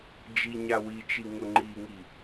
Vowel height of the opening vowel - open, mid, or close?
close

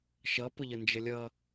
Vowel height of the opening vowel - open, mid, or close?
mid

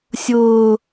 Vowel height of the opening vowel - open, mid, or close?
close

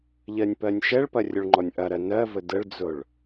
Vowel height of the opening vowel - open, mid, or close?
mid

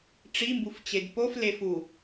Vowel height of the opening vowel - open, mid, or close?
close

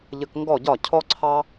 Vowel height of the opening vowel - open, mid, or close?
mid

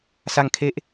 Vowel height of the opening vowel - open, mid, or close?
open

